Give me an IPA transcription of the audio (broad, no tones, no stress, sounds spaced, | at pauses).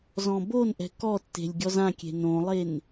z ɔ̃ b o n ʔ ɛ̤ k ɔ tː e̤ lʲ ɡʲ ɔ z ã kʲ e̤ n õ lˠ e n